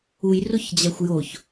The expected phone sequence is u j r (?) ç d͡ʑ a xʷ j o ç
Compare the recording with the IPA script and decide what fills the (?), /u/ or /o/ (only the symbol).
o